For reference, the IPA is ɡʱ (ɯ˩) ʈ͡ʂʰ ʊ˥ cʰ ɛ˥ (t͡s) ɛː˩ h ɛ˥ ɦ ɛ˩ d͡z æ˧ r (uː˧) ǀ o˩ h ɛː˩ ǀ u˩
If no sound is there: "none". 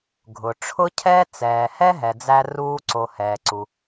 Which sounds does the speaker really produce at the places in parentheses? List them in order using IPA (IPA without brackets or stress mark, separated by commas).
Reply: ʊ˩, t͡s, uː˧